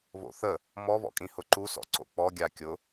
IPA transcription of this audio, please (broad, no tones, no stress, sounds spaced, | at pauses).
β o̰ θ ə | m ɔ β ɔ̰ kʼ ĩ h ʊ ǃ u s ɔ̰ ǀ o̰ k͡p ɔ ɡʲ a kʲ ʊ